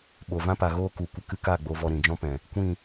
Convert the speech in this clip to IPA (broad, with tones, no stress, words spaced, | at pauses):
ɓo˨vã˦pa˨ɣoː˦ ku˨kʷə˧kɨ˦ka˦˨ ɡ͡bo˧vɔ˧ ɾĩ˨d͡ʒɔ̃˦pɛ̃˨ | kʷĩ˦˨